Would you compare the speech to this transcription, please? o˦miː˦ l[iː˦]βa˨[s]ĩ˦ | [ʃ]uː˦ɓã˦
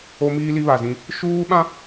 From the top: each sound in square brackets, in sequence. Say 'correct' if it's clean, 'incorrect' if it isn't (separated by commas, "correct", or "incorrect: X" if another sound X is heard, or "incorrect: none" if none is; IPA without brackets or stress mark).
incorrect: i˦, incorrect: z, correct